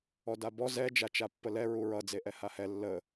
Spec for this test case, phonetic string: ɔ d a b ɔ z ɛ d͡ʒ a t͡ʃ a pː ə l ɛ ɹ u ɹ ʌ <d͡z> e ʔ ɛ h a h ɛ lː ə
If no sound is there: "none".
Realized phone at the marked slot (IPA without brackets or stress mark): d͡z